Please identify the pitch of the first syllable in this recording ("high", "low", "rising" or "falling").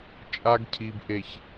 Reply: high